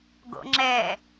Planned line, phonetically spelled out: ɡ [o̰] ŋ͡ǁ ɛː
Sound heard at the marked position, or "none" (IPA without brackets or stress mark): o̰